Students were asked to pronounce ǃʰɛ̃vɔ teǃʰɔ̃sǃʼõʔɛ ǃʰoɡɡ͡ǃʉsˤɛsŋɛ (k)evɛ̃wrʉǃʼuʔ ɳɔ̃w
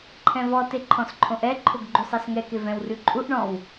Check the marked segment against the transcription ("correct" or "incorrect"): correct